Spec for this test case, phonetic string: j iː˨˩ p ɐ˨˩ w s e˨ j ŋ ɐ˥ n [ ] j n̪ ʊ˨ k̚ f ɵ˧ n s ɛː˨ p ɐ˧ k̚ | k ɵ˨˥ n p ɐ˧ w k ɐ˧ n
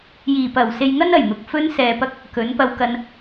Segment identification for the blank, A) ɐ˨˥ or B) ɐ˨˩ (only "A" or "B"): B